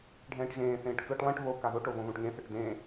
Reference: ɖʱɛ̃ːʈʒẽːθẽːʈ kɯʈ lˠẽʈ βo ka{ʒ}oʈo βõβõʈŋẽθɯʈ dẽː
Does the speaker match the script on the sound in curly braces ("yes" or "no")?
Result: no